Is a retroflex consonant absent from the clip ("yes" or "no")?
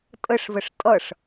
no